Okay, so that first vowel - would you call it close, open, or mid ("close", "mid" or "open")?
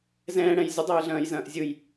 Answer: mid